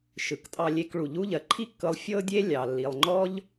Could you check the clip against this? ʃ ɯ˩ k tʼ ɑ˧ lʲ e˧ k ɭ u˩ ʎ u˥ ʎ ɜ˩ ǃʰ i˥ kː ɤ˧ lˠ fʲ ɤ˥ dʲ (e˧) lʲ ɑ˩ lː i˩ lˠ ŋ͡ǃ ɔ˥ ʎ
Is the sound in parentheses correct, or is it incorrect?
incorrect